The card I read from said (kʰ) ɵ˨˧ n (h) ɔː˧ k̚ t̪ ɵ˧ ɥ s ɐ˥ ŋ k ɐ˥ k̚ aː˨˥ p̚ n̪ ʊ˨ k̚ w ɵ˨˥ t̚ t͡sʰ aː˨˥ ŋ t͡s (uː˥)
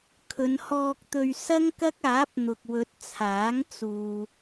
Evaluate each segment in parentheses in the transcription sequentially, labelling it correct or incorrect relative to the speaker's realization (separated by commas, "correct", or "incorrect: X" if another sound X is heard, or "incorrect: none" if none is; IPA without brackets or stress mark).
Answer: correct, correct, incorrect: uː˨